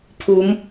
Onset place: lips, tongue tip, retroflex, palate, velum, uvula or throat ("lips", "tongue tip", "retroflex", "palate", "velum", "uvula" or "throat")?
lips